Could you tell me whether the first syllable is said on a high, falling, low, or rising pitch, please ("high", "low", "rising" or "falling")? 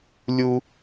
high